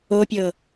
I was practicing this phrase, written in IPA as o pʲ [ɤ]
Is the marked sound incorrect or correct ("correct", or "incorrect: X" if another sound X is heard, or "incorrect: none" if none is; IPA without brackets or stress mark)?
correct